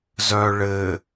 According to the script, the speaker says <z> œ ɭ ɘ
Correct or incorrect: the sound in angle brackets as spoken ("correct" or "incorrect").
correct